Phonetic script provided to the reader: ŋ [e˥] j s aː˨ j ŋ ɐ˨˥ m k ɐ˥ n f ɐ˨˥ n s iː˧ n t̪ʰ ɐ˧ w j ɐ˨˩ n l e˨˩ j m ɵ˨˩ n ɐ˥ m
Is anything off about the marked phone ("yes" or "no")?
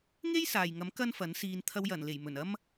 no